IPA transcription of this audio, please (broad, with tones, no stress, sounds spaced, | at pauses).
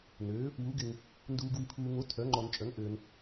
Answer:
n øː˩˥ | w u˩˥ ɡ ɪ˨ ŋ | n d uː˨ ɡ w i˨ pʰ uː˨ ŋ o˩˥ tʰ œ˩˥ ŋ͡ǃ ɔ˨ n t͡ʃʼ œ˩˥ ŋ ʔ øː˨ n